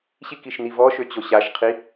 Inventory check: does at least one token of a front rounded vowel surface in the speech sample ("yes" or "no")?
yes